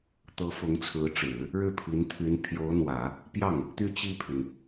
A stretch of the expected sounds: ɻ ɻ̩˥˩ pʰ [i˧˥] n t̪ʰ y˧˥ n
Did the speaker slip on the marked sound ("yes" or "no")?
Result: no